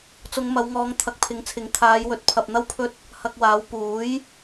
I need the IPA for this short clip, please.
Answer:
t͡sʊ˨˧ŋmɐ˨˧wŋɔː˨˧ŋ t̪ʰɐ˨˥k̚pʰɪ˨˥ŋt͡sʰɪ˨˥ŋ t̪ʰaː˨˧jwɵ˨t̚ pʰɐ˨p̚n̪ɐ˥wpʰɵ˥t̚ | hɐ˧k̚waː˨˥w puː˨˥j

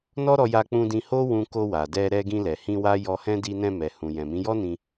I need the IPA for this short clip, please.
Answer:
nɔ˦ɾɔ˧ ja˧k͡pũ˧dĩ˧ ho˦wũ˧ ko˧ wa˨dɛ˧ɾɛ˧ ɡĩ˧lɛ˨hĩ˧ wa˦ jɔ˧hɛ̃˦ di˧nɛ̃˧mɛ˨ hũ˨jɛ̃˨mĩ˨˦jɔ˦ nĩ˧

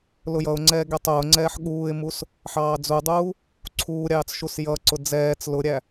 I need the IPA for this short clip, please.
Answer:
lʊjʌʊ̯ŋ͡ǀɛː ɡɛtˤʊːŋ͡ǀɛːħ ɠuːɪ̯mus | ħɑːd͡zudˤuː | ǀʰuːɾʲɑːt͡s ʃusjʌǀʊ d͡zɛːt͡s lʊɾʲæ

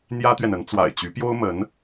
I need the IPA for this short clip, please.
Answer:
n̪jä˥t̪ɥɛ˨nə˧˥n t͡swa̰˨˩ɪ̯t͡ɕy˧˥pjo˥ʊ̯mə˧˥n

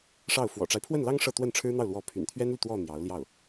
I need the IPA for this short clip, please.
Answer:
ʂɑ˥˩ʊ̯ fwɔ̰˨˩ʈ͡ʂa˦ɪ̯pʰwə˥˩nlɑ˥ŋ ʂɤ˥˧t̪wə˥˩nʈ͡ʂʰɻ̩˥n̪ɑ˥˩ʊ̯ lwɔ˧˥pʰy̰˨˩nt̪ʰɥɛ˥nly˨ t̪wɔ˥˩ n̪jɑ˧˥ʊ̯ljɑ˥˩ʊ̯

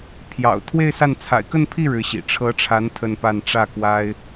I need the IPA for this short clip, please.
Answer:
pʰjɑ̰˨˩ʊ̯ t̪ʰwe˥˧ɪ̯sa˥˩n t͡sʰa̰˨˩ɪ̯kə˥˧npʰi˥˩ ɻɻ̩˧˥ɕḭ˨˩ ʈ͡ʂʰɤ˧˥ʈ͡ʂʰa˧˥n t̪ʰə˥˧npa˥˧n ʈ͡ʂä˥˩kwa˥ɪ̯

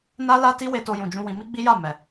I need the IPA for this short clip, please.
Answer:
na˦la˦ti˦ we˧to˧jũ˨d͡ʒũ˧ wĩ˧mi˦ɡ͡bi˦ja˦˨ mɛ˨

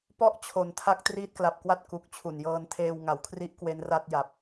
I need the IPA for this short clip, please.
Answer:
pɔ˥˩ʔ t͡ɕʰo˨˩ntʰa˦˥k̚ triː˦˥t̚kla˨˩p̚kwa˥˩t̚ ku˨˩k̚ t͡ɕʰu˨˩njɤː˧ntʰeː˧w ŋa˩˦wkʰri˦˥ʔ kwe˦˥nra˥˩t̚ ja˨˩p̚

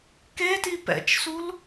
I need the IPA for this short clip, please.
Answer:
keti pɛ̰t͡ʃsul

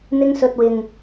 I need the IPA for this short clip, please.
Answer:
n̪ɪ˥ŋsɵ˧t̚wɪ˨ŋ

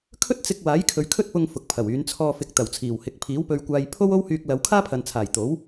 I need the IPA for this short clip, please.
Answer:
kʰɵ˥t̚t͡sɪ˧k̚ waː˨˥jkʰɵ˨˧ɥkʰɵ˥t̚pʊ˧ŋ fʊ˨k̚pʰɐ˨˩wyː˨˧n t͡sʰɔː˨fɪ˨k̚ t̪ɐ˨˩wt͡sʰiː˨˩whɪ˨˥k̚ pʰiː˨˥wpɵ˧ɥkʷaː˧j pʰo˥w o˥whyː˧k̚lɐ˨˧w kʰaː˥pʰɐ˨nt͡sʰaː˨˩j t̪o˨˥w

